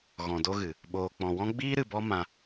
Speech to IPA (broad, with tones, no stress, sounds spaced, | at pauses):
ɣ ɔ̃˨ d o˧ ɣ ɨ˨ | ɓ oː˨ k͡p ɔ̃˨ w ɔ̃˦ ɡ͡b iː˦ ɾ ɨ˨ b ɔ˦ m ã˧